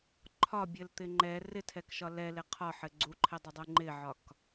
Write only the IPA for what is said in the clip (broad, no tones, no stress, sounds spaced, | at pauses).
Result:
ǃʰ ɒ bʲ ɘ l t̪ ɪ ŋ͡ǃ ɛ r ɪ tʰ ɛ k ʃ ɒ l ɛ l ɪ qʰ ɒ ħ ɘ ɡ͡ǀ u ǃʰ ɪ dˤ ɪ dˤ u ŋ͡ǃ ɪ ʕ ɒ k